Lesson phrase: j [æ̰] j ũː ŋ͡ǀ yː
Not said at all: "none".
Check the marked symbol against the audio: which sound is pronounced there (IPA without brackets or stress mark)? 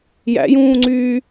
æ̰